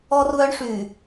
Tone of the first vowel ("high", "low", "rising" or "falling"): high